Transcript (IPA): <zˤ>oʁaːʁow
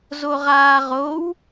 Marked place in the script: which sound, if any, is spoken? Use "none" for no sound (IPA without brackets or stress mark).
z